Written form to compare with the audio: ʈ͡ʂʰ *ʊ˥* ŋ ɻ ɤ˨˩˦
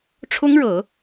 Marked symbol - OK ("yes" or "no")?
yes